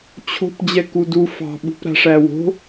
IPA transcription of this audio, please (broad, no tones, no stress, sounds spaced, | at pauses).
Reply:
t͡ɕʰ o̤ p d͡ʑ ɛ k u d u f ɑ̤ ɓ ṳ p ɾ a̤ ʂ æ w o̤